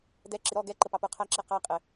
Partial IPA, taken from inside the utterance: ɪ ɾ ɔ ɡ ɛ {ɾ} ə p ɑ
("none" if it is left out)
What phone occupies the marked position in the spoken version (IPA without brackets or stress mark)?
ǃ